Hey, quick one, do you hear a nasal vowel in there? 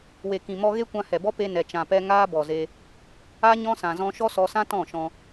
yes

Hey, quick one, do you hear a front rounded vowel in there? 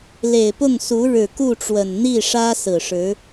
no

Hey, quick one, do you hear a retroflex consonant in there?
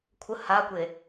no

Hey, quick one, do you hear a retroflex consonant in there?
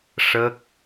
yes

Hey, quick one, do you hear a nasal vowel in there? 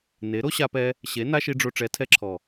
no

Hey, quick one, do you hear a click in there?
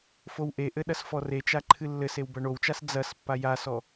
yes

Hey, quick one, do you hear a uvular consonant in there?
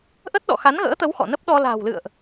no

